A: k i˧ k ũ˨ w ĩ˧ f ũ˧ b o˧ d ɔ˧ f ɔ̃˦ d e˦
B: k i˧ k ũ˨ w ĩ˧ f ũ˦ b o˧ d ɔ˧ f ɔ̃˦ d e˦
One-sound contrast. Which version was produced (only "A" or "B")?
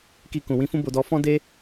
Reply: B